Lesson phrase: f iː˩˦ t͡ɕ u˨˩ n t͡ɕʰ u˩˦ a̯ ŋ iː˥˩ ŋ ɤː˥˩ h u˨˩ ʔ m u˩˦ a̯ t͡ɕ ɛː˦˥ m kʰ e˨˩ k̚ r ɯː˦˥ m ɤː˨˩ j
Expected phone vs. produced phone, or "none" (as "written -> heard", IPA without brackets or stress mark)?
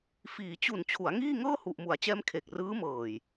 none